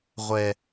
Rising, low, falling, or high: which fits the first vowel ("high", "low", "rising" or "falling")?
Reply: high